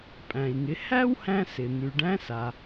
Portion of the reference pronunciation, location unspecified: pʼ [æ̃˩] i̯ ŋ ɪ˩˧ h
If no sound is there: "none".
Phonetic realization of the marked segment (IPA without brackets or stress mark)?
æ̃˩